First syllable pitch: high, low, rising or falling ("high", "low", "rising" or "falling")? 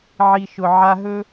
low